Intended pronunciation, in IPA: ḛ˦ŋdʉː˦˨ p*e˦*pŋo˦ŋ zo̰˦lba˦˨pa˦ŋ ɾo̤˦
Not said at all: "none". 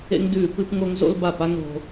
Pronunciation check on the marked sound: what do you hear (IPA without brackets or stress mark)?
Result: ɨ˦